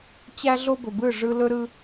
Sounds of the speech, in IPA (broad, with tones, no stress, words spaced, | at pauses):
t͡ɕæ˦ɮo˦bɵ˨bɯ˦˨ ʐɯ˦ lɵ˦ɾɯ˦